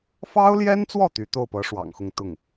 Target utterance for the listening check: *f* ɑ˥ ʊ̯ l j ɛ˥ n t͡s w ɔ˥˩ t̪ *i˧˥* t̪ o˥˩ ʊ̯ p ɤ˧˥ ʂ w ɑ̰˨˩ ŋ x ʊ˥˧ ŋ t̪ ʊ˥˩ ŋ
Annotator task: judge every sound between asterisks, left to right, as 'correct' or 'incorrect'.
correct, incorrect: y˧˥

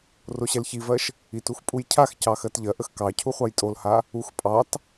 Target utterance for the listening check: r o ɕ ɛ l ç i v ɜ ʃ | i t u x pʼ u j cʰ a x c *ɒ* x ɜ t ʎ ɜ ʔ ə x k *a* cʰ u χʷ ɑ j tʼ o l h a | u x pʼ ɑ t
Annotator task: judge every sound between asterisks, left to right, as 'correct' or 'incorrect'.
incorrect: ɑ, incorrect: ɑ

